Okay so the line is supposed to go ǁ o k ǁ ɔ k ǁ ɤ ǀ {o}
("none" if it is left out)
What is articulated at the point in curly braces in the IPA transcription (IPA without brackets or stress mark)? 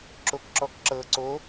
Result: o